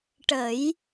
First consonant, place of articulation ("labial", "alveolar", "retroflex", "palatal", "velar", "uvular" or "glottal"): retroflex